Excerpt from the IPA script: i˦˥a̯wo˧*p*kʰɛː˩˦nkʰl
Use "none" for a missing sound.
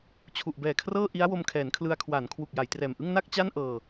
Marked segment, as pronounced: m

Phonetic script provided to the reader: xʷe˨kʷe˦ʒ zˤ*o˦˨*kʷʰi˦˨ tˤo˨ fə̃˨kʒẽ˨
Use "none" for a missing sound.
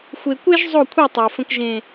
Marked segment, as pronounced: o˦˨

